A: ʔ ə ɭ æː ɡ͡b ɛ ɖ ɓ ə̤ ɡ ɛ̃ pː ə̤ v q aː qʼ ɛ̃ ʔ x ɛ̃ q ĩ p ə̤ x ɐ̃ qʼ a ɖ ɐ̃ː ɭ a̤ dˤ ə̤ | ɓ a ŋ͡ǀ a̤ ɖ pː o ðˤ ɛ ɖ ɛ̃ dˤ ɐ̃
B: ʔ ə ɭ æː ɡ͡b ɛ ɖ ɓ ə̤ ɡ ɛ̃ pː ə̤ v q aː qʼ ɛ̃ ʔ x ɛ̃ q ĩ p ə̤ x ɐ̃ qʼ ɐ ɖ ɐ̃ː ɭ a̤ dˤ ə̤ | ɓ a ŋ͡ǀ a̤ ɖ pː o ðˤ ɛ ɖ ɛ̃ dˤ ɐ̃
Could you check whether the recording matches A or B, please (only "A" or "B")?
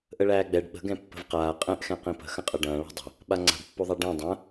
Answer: B